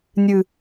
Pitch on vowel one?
low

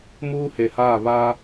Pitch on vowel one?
high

